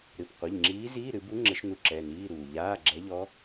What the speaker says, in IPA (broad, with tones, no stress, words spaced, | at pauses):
ɾɨ˩˧˩p qʷɘ˩˧˩ʎŋ͡ǁiː˧˥ ziː˧˥˧ɾɨ˨˩˦bu˧˥ ŋ͡ǁɘ˧˥ʃnu˧˥ǁɛ˩˧˩niː˧˥˧ ɾuː˩ ʎaː˧˥˧ɡ͡ǁɛ˧˥ʎɔ˧˥